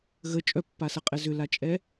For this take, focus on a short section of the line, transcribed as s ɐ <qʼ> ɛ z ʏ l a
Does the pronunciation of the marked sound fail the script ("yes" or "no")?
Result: no